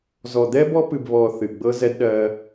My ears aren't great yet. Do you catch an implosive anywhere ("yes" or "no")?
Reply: yes